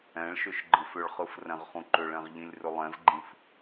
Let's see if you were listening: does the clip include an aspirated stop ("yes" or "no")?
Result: no